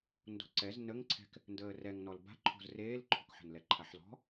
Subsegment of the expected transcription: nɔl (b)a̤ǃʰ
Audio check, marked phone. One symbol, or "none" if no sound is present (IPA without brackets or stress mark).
b